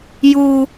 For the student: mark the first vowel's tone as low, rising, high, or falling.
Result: high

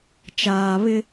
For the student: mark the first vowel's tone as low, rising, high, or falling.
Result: low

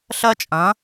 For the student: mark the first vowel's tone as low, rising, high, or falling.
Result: high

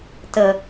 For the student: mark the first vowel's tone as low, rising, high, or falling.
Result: low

